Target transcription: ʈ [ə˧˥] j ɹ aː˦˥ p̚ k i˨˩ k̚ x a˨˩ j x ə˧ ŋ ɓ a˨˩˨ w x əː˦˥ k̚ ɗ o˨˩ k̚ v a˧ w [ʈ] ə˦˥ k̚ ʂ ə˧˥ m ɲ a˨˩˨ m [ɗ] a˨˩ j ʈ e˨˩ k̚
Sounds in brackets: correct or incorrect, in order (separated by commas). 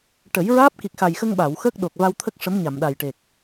incorrect, incorrect, correct